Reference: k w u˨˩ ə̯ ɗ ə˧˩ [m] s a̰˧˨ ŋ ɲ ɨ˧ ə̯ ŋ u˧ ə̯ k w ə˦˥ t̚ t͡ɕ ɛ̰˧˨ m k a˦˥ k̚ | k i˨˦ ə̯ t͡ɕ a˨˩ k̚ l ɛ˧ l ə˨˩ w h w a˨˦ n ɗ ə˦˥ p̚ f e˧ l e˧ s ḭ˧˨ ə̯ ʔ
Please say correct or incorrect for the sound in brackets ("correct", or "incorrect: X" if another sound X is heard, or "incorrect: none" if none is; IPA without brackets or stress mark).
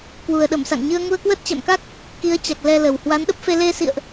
correct